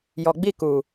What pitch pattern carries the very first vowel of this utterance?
low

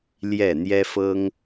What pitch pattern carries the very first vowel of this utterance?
falling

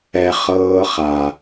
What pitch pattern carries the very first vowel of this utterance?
low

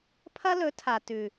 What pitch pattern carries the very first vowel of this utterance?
high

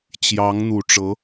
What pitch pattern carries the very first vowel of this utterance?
rising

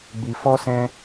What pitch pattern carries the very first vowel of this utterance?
low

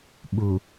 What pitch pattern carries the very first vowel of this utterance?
low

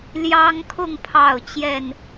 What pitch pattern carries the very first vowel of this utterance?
high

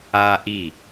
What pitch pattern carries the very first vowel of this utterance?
high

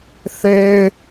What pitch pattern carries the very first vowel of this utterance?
high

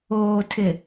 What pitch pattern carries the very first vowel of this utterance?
low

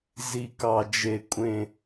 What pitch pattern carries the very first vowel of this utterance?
low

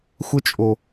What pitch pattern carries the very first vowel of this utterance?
high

